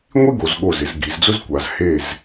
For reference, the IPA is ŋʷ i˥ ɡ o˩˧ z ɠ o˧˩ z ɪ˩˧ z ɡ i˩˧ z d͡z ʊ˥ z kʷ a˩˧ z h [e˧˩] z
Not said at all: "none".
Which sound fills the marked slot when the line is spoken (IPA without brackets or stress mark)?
e˧˩